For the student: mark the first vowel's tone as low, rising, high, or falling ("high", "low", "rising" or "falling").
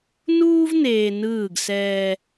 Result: high